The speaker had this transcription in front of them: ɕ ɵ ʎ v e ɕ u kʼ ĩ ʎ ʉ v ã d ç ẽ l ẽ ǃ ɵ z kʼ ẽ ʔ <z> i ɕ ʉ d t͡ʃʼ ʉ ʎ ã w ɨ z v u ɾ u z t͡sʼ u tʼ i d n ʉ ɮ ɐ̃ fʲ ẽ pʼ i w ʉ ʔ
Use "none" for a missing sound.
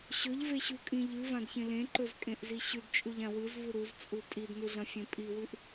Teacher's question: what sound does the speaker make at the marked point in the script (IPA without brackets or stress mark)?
z